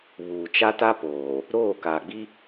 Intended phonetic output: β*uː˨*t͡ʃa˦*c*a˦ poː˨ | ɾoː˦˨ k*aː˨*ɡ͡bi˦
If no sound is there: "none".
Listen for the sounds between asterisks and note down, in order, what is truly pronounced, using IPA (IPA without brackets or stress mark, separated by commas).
uː˨, t, aː˨